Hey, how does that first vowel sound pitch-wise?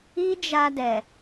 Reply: high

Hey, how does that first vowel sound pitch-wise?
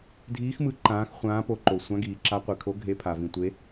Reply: rising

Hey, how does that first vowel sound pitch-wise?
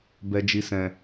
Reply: low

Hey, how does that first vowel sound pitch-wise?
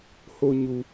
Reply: high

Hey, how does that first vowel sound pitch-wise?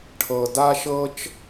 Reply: low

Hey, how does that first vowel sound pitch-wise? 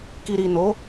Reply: low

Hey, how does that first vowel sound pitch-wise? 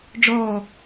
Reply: falling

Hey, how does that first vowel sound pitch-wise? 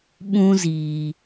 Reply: high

